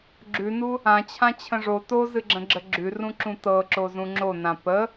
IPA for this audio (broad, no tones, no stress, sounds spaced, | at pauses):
ɡ͡ǁ ʉ n u | ã t͡ɕʰ ã t͡ɕʰ ə̃ ʐ o t o z ɨ ɡ͡ǁ ə̃ ɡ͡ǁ ə ɡ͡ǁ ʉ r ũ ǁ ũ t ɤ ǁ o z ũ ŋ͡ǁ o n ã p ə